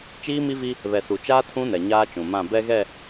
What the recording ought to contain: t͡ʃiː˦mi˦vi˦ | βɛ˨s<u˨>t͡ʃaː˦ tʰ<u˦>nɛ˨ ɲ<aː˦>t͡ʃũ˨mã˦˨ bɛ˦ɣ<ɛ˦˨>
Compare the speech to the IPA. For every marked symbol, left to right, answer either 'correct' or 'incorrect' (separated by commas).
correct, incorrect, correct, correct